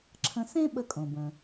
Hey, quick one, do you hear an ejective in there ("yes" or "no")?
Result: yes